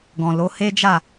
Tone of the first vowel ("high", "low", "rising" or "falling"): low